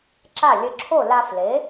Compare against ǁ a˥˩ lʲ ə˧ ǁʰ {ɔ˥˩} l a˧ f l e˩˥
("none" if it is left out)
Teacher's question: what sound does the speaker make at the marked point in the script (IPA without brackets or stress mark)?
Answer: o˥˩